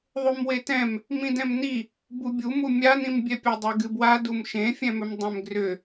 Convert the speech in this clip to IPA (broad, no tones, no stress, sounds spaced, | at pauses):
ðˤ u m w e t ɛ̃ m | m ĩ d ɛ̃ m n i | b u bʲ u m u mʲ a n ĩ m bʲ ɛ pʲ a dˤ e ɡ ɨ b w a d u m ʃ ẽ fʲ ɛ̃ m ʏ m dˤ ẽ m ɡ r ʏ